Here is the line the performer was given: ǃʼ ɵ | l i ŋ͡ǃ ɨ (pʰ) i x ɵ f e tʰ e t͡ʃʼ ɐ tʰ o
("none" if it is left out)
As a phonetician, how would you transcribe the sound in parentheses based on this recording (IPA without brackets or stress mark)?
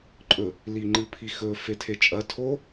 pʰ